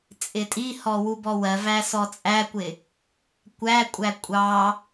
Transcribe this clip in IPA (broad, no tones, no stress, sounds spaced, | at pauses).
t͡sʼ ɪ tʼ i h ɔ w u b ɔ w ɜ v æ s ɔ t͡sʼ æ kʷ ɪ | kʷ æ kʷʼ æ kʷʼ ɑ